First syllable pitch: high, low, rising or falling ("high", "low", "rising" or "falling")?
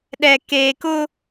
low